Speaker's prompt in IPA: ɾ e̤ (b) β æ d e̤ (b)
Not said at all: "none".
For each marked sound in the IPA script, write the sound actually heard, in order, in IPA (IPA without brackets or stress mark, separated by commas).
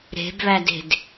b, d